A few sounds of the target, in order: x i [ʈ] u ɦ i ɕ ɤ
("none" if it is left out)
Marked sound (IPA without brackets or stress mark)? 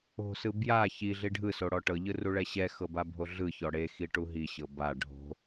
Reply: ʈ